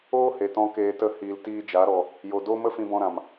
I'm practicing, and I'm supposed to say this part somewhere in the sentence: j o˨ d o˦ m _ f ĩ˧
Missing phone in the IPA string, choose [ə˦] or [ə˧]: ə˦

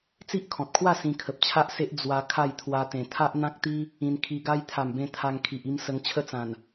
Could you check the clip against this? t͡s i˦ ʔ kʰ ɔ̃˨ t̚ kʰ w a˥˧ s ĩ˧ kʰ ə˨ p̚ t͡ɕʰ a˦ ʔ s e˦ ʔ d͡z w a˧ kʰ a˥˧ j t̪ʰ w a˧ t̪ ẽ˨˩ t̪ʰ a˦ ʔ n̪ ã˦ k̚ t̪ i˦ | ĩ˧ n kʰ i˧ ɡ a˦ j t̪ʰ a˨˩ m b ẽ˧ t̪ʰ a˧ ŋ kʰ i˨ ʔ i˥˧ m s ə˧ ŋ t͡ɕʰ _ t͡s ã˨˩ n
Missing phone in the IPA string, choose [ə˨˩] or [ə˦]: ə˦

